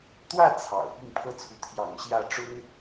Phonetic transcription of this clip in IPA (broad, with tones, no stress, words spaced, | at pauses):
t̪wä˥˩ t͡sʰɑ̰˨˩ʊ̯pi˥˩ŋ pʰɤ˥t͡sʰu˧˥ t̪ʰjɑ̰˨˩ŋ ɕjä˥˩ʈ͡ʂʊ˥ŋ